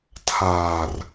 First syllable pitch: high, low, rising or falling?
low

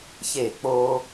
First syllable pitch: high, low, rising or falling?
falling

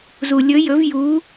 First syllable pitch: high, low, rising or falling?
low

